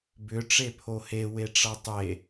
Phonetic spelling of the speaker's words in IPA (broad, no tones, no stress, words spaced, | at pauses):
bʏ ʈ͡ʂepʰohe weʈ͡ʂʌtˤe